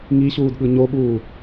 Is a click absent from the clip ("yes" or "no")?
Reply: yes